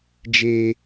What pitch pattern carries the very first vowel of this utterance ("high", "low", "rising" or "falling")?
high